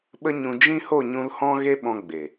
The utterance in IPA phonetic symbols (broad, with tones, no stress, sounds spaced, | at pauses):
ɓ ə˦ ɲ ũ˧ d͡ʒ ĩ˦ h o˦˨ ɲ ũ˧ l h ɔ̃˦ ɣ e˦ ɓ ɔ̃˧ ɡ͡b e˨